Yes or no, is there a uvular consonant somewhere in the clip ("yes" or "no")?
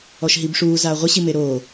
yes